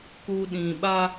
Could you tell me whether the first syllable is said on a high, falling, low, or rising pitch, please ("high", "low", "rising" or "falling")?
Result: low